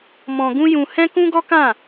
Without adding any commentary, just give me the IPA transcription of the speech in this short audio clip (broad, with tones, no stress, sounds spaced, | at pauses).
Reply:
m ɔ̃˧ ɡ ũ˦ j ũ˧ h ɛ̃˦ k ũ˦ ɡ ɔ˦ k ã˦˨